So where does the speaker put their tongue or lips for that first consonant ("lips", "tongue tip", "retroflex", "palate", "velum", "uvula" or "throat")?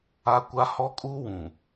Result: velum